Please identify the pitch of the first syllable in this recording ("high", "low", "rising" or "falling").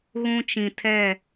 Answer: high